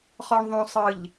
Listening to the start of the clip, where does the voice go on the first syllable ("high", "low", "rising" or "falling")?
low